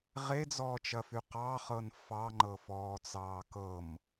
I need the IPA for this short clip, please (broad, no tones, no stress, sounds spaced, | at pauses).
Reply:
ʁ e d͡z ɔː t͡ʃ ɐ f y q ɑ χ ɤ n f ɑ ŋ͡ǃ ɤ f ɔː t͡s ɑː k ɤ m